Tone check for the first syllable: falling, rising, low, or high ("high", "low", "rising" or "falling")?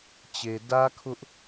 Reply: low